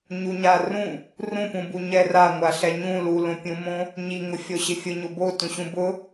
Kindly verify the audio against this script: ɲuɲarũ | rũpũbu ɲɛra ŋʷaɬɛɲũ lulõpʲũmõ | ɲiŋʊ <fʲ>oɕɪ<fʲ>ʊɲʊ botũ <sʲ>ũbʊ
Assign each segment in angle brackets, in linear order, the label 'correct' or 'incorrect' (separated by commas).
correct, correct, incorrect